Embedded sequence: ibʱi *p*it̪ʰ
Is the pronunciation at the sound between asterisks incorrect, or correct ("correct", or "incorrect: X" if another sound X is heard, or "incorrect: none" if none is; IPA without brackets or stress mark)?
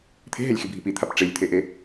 correct